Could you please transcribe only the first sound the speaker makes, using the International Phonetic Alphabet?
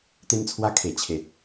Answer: t̪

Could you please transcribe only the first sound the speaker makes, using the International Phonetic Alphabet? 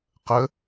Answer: q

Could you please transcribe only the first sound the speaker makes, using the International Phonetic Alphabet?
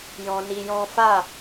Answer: j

